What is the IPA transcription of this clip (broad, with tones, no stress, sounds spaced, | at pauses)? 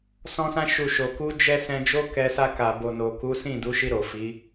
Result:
s ɔ̃˧ s ã˧ ʃ u˨ ʃ o˨ k u˨˦ d͡ʒ ɛ˧ s ɛ̃˧ d͡ʒ o˦ k ɛ˧ s a˧ k a˨ b o˨ n o˨ k u˨˦ s ĩ˦˨ d u˨˦ ʃ i˧ ɾ o˨ f i˨˦